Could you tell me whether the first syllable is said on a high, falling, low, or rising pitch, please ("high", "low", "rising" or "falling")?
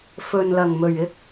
low